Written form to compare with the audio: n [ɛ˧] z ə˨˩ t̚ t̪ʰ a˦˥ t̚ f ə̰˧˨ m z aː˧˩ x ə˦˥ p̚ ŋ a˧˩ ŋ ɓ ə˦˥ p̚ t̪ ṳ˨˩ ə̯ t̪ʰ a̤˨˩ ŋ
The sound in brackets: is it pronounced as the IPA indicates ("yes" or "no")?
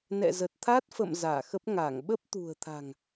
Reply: no